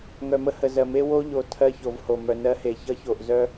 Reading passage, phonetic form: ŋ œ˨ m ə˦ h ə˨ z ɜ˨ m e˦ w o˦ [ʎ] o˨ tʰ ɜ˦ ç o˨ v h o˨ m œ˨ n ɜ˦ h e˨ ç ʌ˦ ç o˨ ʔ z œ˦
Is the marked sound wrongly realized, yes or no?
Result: no